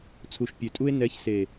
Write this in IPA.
t͡sʰ u˨ ʃ pʲ ø˨ tʼ u˧ e̯ n ɛ˨˦ ç s e˨

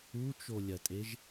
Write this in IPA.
u t͡ʃ o lʲ ɐ tʼ e ʒ

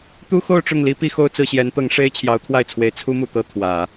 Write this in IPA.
t̪ u˥ x o˥˧ ʊ̯ ʈ͡ʂ ʊ˥˩ ŋ l i˥ p i˥˧ x o˥˧ ʊ̯ t͡s ɹ̩˥˩ ɕ j ɛ˧˥ n t̪ ɤ˧˥ ŋ ʂ e˥ ɪ̯ t͡ɕʰ j ɑ˧˥ ʊ̯ t̪ʰ w a˥˩ ɪ̯ t͡sʰ w e˧˥ ɪ̯ t͡sʰ u˥ m u˨˩ t̪ ɤ˥˩ t̪ʰ w ä˨˩˦

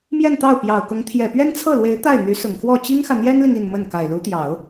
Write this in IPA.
m j ɛ˥˧ n t̪ ɑ˥˩ ʊ̯ p j ɑ˨˩ ʊ̯ k ʊ˧˥ ŋ t̪ʰ j ɛ˨˩ p ɥ ɛ˥ n t͡sʰ ɤ˥˩ l w e˧˥ ɪ̯ t̪ a˥˩ ɪ̯ n̪ y˧˥ s ʊ˨˩ ŋ x w ɔ˥˩ t͡ɕ i˥ ŋ x ä˨ n̪ j ɛ˥ n l i˨ ŋ i˥˧ n m ə˥˩ n k a˨˩ ɪ̯ l u˧˥ t̪ j ɑ˨˩˦ ʊ̯

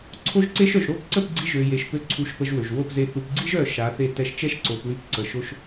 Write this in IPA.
ǀʰ o˦ ʒ ǀ e˦ ʃ œ˨ ʒ ɾ o˦˨ p ǀ ə˦˨ p ɡ͡ǀ i˧ ʒ ø˨ j e˨ ʃ p ø˧ ǀʰ u˧ ʃ p ə˧ ʒ w ø˨ ʒ w o˦˨ p z e˧ θ u˨ p ɡ͡ǀ i˦ ʒ œ˦˨ ʃ a˨˦ θ e˦˨ t ɛ˧ ʃ t͡ʃ ɛ˦ ʃ ǀ o˨ p w y˧ p ǀ ə˨ ʃ o˧ ʃ

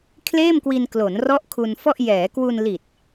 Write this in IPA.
kʰ l eː˥˩ m k w i˧ n k l o˩˦ n r ɔ˦˥ ʔ kʰ u˧ n f ɔ˥˩ ʔ j ɛː˩˦ k w u˧ n l i˨˩ t̚

